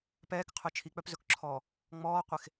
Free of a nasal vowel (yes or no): yes